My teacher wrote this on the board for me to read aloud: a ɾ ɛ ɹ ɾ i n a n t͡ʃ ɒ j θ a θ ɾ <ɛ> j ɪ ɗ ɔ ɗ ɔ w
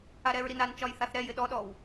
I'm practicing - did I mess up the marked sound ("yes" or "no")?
no